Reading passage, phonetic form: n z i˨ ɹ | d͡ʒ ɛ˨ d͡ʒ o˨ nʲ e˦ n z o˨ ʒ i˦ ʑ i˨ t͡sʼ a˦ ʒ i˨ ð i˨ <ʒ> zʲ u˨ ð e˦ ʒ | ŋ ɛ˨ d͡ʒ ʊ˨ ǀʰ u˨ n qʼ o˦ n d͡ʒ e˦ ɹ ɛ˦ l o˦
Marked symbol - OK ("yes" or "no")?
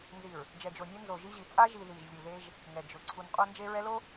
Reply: yes